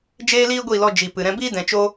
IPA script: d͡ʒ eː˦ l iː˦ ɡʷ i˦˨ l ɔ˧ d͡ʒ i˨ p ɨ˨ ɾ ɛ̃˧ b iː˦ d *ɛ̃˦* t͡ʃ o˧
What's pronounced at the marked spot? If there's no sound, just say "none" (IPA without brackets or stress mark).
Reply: ɛ̃˨